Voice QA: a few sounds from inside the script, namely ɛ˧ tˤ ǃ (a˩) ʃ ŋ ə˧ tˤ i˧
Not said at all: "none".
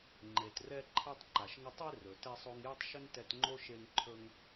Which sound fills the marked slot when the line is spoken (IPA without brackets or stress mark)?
a˩